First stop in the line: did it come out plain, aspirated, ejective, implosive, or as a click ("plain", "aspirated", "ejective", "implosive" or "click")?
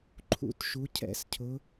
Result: click